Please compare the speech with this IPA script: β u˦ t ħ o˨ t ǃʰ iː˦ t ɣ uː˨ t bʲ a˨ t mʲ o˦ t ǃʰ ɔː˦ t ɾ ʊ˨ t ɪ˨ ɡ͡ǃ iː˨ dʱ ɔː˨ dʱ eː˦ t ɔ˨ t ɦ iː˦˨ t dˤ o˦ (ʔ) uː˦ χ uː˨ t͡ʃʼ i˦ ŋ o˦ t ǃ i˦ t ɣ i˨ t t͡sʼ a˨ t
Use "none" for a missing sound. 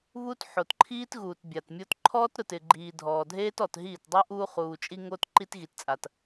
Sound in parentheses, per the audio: ʔ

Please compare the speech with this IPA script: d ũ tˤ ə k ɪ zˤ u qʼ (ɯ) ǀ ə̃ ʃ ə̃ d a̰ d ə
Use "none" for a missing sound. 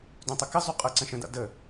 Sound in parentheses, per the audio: ɤ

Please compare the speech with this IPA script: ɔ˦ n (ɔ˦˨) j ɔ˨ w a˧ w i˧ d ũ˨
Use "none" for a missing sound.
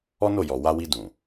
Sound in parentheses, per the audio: o˦˨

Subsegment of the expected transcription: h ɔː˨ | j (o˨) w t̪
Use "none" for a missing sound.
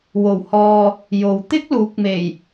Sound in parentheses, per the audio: o˨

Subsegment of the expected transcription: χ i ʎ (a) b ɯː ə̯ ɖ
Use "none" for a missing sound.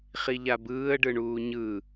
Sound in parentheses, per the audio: a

